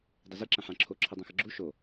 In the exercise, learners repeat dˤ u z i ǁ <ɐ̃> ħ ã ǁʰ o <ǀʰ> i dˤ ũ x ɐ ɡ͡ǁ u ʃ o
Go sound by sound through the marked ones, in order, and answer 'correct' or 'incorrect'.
correct, incorrect: ǁʰ

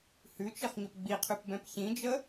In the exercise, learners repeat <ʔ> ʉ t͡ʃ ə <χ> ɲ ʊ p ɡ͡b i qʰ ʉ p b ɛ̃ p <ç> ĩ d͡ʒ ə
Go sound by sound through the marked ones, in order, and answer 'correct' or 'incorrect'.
incorrect: h, correct, correct

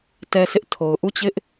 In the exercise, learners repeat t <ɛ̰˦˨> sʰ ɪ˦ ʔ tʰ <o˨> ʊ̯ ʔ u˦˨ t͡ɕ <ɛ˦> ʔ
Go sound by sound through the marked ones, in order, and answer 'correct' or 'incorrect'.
incorrect: ɛ˦, correct, incorrect: ɪ˦

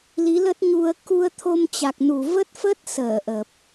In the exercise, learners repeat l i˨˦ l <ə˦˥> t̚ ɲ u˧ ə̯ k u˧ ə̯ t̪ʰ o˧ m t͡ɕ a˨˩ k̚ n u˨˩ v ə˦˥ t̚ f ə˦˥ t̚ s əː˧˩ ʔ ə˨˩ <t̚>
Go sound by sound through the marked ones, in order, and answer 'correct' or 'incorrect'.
correct, incorrect: p̚

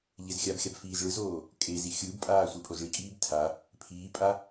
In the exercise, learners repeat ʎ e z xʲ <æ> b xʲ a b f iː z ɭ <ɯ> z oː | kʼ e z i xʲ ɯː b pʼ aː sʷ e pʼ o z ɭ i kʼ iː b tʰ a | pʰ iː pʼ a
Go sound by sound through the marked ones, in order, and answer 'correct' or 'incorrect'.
incorrect: a, correct

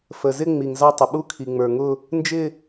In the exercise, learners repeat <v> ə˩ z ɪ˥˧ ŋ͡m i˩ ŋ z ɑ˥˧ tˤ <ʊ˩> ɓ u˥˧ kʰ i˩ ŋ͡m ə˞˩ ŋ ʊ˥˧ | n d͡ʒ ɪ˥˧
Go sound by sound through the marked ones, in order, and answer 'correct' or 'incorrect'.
incorrect: f, correct

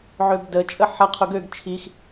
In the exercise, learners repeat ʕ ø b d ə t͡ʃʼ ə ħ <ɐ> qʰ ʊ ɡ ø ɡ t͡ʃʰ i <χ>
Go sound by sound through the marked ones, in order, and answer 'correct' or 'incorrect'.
correct, incorrect: x

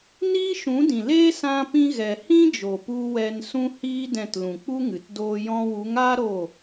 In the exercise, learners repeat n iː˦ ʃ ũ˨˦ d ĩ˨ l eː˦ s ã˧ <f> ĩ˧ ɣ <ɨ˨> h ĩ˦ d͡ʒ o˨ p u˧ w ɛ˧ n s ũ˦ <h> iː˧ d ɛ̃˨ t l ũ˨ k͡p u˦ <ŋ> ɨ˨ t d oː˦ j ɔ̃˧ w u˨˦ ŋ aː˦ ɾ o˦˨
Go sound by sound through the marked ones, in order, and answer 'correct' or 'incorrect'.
incorrect: p, incorrect: ɛ˨, correct, correct

